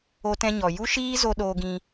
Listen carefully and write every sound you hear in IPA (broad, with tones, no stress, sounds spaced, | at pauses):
o˧ t ɛ̃˧ ɲ ɔ˨ j u˦ ʃ iː˦ z o˧ ɗ oː˧ ɡ ĩ˧